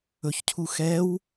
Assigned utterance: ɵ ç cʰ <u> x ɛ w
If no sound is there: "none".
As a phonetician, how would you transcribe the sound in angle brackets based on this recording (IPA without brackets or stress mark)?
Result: u